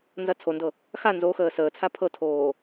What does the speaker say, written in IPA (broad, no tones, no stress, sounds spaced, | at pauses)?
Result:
n z ɐ t͡sʰ o n d ɤ | x a n z o x əː s əː t͡sʰ a pʰ ɤ tʰ oː